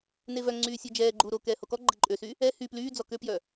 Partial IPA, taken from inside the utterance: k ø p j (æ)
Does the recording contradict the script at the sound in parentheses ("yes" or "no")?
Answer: yes